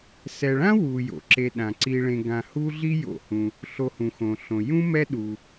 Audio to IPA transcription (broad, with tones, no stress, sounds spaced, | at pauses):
s ɛ˨ ɭ ã˥ w u˨ j o̰˩ ǁ e˨ ɗ ã˩ ǀ i˨ ɭ ẽ˨ ɡ ã˨ h u˦ ɮ i˦ j o̰˨ h ũ˩ | ɬ o˨ h ũ˩ x õ˩ ɬ õ˩ j ũ˥ m ɛ˦ ɗ u˩